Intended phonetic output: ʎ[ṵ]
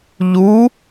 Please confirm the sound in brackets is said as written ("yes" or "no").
no